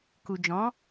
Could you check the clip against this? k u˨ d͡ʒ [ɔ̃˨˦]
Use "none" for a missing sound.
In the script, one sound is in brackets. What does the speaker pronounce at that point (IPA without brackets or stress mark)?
ɔ̃˨˦